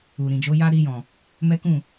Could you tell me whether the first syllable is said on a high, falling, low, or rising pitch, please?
low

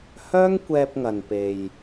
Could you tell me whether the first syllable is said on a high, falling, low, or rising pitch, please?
high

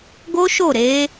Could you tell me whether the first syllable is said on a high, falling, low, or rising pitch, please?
high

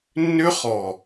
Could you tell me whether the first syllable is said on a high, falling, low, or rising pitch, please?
high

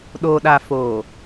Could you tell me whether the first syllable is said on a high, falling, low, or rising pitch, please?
low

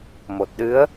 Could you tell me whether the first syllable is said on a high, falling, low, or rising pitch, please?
low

